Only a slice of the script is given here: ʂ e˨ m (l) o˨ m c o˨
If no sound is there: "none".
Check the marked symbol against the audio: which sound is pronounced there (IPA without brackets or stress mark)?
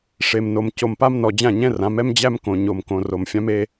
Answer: n